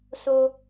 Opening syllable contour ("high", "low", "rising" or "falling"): high